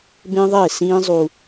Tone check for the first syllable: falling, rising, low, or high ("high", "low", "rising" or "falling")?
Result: high